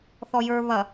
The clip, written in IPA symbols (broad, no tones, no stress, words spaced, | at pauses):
θɔjə˞ βɐ